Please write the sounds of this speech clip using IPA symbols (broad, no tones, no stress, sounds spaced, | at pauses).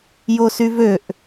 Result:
j o s y v ø ʔ